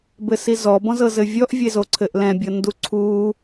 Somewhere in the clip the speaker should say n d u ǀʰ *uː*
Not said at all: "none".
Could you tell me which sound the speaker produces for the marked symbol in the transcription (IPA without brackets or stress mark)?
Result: uː